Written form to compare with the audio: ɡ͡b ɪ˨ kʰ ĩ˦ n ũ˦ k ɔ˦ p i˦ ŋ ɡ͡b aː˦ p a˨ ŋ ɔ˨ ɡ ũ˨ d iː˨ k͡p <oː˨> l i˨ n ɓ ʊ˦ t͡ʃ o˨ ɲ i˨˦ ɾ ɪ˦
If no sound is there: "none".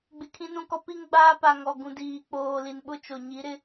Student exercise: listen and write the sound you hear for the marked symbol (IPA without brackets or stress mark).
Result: oː˨